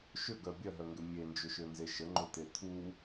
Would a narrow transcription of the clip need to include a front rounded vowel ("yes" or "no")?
yes